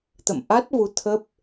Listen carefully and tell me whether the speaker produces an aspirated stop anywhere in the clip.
yes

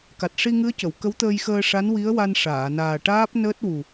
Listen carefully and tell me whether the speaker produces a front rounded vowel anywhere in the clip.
no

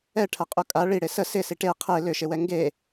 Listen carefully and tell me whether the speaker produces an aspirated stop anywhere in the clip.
yes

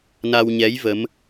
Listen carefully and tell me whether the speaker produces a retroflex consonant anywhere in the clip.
no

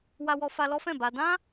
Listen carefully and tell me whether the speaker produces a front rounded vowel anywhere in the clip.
no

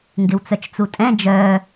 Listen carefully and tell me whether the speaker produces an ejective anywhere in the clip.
yes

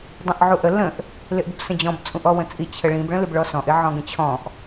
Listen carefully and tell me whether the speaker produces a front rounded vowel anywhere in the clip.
no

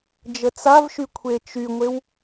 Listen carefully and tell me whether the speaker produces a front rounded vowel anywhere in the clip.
yes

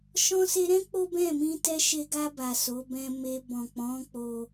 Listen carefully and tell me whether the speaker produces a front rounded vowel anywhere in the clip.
no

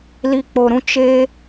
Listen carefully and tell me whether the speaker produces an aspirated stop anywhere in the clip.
no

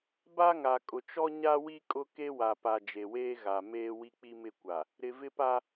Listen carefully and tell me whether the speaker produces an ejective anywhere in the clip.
yes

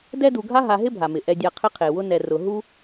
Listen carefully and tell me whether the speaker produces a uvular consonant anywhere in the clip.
yes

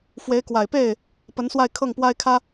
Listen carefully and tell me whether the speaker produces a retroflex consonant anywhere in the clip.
no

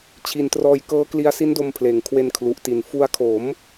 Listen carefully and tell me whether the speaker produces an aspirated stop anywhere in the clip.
yes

